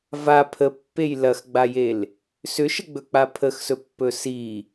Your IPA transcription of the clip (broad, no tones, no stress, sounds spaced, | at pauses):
v a pʰ ə pː e j l ɐ x ɡ͡b a j e l | s ʏ ʃ ə ɡ͡b ɵ k͡p a pʰ ə x s ɵ pː ɵ s i